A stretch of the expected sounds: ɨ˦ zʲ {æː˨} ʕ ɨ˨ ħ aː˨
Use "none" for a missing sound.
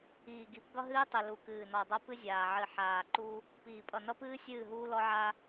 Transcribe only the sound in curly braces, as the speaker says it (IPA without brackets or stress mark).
aː˨